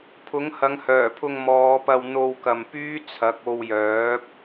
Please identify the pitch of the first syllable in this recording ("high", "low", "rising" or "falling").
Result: rising